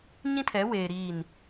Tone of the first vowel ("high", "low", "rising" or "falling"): high